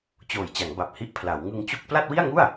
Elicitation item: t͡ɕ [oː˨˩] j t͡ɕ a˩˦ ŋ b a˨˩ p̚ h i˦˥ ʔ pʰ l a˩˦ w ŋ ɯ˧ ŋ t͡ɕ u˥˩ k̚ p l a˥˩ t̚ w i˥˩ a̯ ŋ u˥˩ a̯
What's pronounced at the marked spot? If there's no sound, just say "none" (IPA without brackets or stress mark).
oː˨˩